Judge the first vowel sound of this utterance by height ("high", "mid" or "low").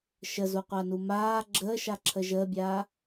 mid